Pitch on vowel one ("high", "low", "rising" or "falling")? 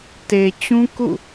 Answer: low